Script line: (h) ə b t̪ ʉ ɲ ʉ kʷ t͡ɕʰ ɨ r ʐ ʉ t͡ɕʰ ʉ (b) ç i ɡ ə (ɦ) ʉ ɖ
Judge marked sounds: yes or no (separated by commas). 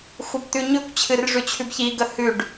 no, yes, no